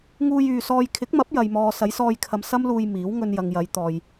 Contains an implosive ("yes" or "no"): no